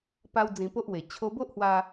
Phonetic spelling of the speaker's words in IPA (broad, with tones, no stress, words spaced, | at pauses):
pa˦wd͡zĩ˧po˦ʔwe˨˩ t͡ɕʰo˧bo˦ʔhwa˧